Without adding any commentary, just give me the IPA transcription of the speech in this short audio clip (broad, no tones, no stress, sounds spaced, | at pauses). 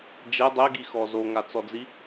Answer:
d͡ʒ ɛ dˤ ɛ ɡ i x ɔ z o ŋ a t͡s ɔ d͡z i